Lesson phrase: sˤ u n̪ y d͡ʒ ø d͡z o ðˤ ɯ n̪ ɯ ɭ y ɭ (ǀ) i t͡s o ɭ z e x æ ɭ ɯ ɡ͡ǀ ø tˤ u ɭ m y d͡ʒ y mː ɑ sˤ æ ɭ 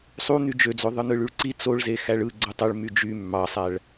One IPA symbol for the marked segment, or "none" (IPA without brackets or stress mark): ǀ